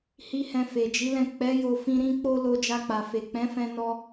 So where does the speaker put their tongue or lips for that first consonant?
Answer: throat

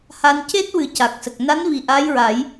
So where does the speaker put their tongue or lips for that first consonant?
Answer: throat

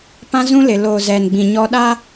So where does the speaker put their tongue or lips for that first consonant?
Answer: lips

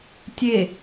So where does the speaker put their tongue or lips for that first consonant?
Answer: tongue tip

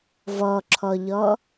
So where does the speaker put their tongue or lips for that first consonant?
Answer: lips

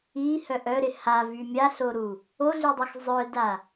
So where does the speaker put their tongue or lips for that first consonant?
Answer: throat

